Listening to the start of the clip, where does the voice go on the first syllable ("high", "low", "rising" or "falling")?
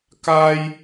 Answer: high